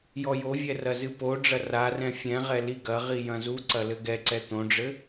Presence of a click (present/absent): present